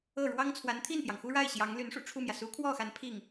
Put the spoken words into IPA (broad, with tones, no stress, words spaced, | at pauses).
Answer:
ɤ˥˩ ɻwɑ˥ŋt͡sʰwa˧˥nt̪ʰi˥˩npjɑ˩ŋ xu˥ɻa˥˩ɪ̯ ɕjɑ˧˥ŋ ly˧˥nʂṵ˨˩ʈ͡ʂʰu˥˩mjä˩ su˧˥kʰwɔ˥˩xa˧˥n pʰi˥˩ŋ